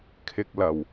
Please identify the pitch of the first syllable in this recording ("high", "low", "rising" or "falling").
low